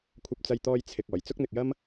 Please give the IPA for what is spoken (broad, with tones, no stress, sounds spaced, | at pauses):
kʷʰ ɐ˧ p̚ t͡s ɐ˧ j t̪ ɔː˧ j t͡sʰ ɪ˨ k̚ ɔː˨˩ j t͡s ʊ˥ k̚ n̪ ɪ˨ k̚ j ɐ˥ m